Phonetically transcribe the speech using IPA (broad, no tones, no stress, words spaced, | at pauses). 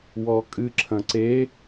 wɔkʼɨ ǁʰɐ̃ǀe